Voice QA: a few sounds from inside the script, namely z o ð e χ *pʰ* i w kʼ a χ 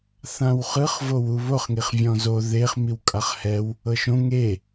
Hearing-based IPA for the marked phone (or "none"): m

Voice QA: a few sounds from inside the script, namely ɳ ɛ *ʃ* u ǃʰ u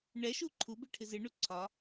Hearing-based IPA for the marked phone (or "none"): ʃ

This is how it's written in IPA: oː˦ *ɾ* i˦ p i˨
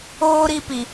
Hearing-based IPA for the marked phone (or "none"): ɾ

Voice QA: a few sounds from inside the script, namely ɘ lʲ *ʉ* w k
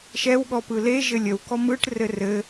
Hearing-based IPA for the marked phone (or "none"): ə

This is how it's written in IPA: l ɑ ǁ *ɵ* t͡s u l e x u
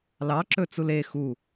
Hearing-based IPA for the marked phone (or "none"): ɵ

